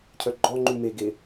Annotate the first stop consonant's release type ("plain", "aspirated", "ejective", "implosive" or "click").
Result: aspirated